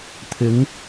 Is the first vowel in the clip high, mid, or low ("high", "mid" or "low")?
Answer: high